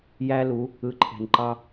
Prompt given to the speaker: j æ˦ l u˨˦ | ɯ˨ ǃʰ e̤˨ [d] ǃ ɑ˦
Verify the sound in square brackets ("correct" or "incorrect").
incorrect